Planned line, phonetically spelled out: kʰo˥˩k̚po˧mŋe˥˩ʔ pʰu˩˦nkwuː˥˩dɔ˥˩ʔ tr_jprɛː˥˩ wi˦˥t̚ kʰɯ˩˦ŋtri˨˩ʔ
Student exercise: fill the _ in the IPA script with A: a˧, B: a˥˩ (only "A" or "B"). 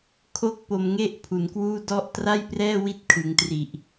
B